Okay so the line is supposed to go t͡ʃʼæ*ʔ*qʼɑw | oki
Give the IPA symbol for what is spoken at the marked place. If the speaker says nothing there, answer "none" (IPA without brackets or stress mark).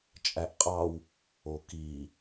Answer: ʔ